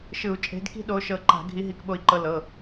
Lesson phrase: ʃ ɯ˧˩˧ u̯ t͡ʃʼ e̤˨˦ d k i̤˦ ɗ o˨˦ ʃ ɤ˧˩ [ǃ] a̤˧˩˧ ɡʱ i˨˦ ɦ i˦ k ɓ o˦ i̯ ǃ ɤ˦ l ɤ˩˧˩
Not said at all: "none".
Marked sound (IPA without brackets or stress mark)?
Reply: ǃ